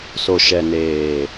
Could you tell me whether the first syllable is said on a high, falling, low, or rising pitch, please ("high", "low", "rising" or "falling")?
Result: low